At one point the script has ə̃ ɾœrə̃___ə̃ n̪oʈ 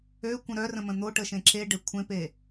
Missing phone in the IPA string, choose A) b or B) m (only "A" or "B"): B